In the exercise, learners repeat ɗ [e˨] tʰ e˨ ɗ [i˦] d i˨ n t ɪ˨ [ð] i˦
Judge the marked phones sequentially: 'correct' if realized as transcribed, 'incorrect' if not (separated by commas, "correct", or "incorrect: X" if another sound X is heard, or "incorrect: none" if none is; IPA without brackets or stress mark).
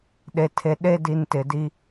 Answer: correct, incorrect: e˦, incorrect: d